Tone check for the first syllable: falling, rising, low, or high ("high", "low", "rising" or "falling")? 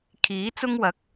rising